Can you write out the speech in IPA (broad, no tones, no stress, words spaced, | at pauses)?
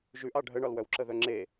ʒʉʔɑ ɖʱəɳɒlwœw ǁəðœŋ͡ǁe